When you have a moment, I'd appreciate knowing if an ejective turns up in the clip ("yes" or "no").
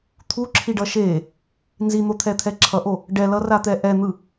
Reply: no